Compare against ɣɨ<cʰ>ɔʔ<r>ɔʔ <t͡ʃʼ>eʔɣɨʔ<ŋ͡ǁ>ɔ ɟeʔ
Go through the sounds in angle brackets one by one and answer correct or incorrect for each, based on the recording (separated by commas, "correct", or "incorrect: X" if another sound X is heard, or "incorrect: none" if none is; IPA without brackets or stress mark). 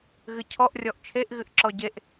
correct, incorrect: rʲ, incorrect: t͡ʃʰ, incorrect: ǁ